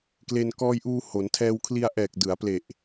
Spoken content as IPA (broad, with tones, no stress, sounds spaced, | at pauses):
k l e˧ n k ɔː˧ j ʔ uː˧ h o˩˦ n tʰ ɛː˧ w kʰ l i˧ a̯ ʔ ɛː˨˩ k̚ d ɯ˩˦ a̯ p l e˨˩ ʔ